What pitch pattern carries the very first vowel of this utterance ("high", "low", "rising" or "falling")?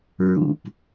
low